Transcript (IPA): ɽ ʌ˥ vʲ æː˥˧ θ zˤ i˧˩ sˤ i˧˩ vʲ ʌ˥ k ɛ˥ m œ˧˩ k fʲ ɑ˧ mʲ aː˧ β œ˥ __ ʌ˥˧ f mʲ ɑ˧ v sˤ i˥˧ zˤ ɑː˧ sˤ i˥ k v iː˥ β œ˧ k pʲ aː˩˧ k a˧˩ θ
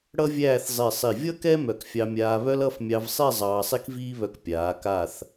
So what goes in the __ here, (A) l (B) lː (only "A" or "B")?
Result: A